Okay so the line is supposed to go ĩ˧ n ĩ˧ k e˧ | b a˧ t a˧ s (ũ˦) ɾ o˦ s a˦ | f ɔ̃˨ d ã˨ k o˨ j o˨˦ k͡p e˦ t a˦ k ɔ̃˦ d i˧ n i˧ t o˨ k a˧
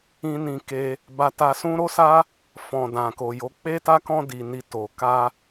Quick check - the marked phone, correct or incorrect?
correct